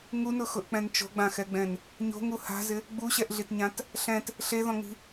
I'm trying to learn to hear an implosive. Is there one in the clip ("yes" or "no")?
no